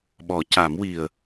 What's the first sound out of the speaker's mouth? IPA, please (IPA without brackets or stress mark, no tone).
ɓ